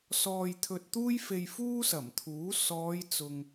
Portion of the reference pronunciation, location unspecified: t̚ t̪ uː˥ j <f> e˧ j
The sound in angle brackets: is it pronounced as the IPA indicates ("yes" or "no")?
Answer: yes